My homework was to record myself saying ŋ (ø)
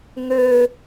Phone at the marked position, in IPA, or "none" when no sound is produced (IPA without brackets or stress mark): ø